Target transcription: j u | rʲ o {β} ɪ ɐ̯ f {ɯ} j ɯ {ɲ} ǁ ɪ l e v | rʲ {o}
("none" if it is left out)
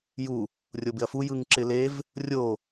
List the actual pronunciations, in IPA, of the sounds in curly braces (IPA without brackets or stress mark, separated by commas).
b, u, ŋ, o